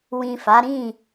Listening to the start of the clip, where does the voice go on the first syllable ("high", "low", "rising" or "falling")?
low